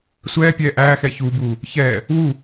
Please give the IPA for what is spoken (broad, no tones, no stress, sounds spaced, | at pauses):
sʷ ɛː pʲ ɛː ʔ æː x ɛ ç u b uː | ç ɛː | w u